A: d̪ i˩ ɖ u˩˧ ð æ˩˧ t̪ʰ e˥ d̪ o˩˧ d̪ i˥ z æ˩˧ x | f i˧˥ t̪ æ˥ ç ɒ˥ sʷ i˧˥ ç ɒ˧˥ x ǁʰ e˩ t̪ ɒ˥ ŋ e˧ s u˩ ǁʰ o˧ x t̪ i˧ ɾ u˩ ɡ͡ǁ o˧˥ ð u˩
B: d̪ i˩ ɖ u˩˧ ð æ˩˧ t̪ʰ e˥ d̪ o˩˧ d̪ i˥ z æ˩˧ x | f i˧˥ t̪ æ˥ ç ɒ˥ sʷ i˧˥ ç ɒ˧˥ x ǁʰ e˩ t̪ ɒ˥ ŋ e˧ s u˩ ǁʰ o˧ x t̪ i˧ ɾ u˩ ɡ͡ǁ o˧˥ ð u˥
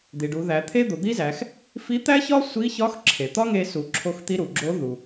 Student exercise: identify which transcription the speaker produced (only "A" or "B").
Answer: A